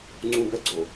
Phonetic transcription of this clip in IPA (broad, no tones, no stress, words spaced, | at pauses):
ŋ͡ǀũbɛɡ͡ǀo